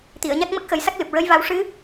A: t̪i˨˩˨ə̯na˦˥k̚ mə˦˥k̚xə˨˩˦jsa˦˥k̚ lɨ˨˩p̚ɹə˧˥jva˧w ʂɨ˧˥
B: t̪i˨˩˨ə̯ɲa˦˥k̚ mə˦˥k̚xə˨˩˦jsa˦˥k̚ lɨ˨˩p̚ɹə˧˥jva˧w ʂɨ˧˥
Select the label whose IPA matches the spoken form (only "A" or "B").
B